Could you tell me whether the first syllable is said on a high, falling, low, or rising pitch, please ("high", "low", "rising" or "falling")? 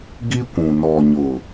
high